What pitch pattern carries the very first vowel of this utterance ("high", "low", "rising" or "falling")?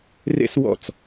high